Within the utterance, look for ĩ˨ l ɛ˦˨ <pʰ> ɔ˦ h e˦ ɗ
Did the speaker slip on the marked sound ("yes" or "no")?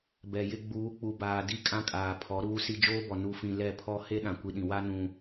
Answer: no